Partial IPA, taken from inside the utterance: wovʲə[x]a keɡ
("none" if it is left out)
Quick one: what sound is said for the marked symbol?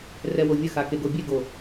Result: x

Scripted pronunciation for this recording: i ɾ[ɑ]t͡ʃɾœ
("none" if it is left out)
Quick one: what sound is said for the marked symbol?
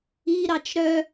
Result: ɑ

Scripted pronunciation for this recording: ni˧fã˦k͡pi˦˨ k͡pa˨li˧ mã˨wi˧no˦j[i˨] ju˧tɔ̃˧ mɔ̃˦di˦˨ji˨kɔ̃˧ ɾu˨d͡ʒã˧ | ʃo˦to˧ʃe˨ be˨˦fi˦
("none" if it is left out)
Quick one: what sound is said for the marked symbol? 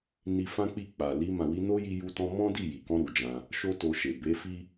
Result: i˧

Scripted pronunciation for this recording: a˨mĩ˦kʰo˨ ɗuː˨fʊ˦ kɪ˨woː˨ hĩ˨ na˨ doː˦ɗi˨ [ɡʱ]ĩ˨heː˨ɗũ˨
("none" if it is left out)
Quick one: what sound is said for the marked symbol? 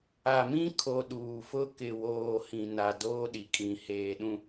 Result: kʼ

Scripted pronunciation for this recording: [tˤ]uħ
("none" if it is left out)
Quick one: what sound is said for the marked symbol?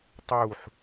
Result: tˤ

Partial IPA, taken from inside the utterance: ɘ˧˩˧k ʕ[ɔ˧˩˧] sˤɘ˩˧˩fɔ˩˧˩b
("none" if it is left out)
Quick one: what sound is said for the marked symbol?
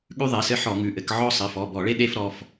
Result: ɔ˥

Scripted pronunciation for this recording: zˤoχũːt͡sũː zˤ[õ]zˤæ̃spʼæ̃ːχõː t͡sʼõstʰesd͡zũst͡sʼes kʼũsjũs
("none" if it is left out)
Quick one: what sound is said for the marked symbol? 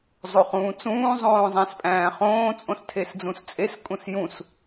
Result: õː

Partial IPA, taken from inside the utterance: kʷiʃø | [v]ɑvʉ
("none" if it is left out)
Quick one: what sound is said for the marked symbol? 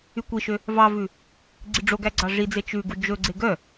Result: v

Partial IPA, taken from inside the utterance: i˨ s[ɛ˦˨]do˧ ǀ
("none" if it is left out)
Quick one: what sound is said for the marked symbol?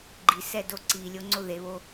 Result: ɛ˦˨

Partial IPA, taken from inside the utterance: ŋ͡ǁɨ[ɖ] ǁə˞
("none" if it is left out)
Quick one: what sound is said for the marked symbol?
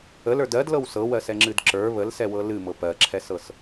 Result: d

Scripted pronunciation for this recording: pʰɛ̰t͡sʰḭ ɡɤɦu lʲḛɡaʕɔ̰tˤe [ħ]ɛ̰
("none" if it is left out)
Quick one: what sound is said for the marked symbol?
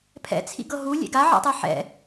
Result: ħ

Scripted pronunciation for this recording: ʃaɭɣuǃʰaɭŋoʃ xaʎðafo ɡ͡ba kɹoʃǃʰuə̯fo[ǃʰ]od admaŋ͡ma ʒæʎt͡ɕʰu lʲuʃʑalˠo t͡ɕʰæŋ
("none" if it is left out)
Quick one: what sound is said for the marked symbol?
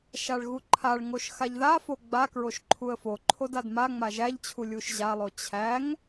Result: ǃʰ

